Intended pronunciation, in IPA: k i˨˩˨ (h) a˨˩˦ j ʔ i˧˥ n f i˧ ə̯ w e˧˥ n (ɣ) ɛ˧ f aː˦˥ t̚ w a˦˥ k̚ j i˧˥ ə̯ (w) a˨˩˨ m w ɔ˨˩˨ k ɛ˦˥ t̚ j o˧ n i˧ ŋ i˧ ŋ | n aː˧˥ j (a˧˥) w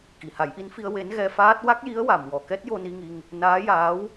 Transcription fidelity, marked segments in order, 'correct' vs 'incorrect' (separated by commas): correct, correct, correct, incorrect